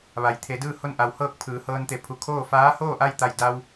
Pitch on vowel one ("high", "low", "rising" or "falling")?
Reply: low